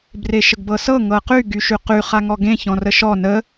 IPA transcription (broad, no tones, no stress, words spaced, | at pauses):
breʃəɡbɤsɤ ŋɤqy ɡyʃyqy χaŋɔɡẽ çɔ̃rəʃɔ nə